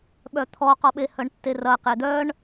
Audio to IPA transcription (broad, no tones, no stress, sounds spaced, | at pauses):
ɓ œ t̪ʰ ɔ q ɔ ɓ e h œ ɳ tː e r ɐ q e d̪ œ ɳ